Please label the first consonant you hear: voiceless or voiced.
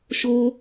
voiceless